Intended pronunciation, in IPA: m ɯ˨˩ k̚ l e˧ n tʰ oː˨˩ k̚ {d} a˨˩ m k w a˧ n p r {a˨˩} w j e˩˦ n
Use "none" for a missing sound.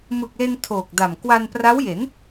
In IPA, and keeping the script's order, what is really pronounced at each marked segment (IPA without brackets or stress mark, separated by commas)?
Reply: d, a˦˥